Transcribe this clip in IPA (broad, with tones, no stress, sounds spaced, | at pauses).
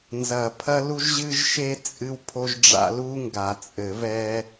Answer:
n z ɐ˨˩˦ pʰ ɐ˦ l u˦ ʒ ʑ ɨ˦ ʒ ʃ e˦ t͡sʼ ɨ˦ w pʰ o˦ ʒ ɖ͡ʐ a̰˦ l u˦ ŋ ɡ a˨˩˦ t͡sʼ ɘ˨˩˦ v ɛ˦